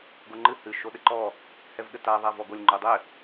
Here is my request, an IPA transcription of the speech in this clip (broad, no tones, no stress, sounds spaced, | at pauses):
ɡ o ŋ͡ǃ ɨ h ɨ ʃ o ɗ ɘ ǃ ɔ | h ɛ v ɠ ɘ t a ðˤ a v ɔ ɡ o lʲ ŋ͡ǃ u dˤ ɘ